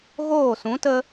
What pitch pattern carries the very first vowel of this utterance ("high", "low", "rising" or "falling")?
falling